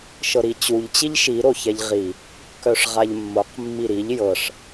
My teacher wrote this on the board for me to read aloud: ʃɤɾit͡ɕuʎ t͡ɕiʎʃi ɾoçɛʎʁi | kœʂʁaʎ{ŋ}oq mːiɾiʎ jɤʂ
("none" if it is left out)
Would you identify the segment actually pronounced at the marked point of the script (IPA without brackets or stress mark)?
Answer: mː